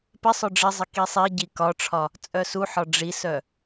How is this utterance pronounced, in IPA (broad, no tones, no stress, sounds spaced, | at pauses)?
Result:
p ɪ sˤ œ ɖ͡ʐ ɪ zˤ ɪ k i sˤ i ɟ i k ɒ ʈ͡ʂʰ ɒ | t͡sʼ œ s u ħ ɒ ɖ͡ʐ i s œ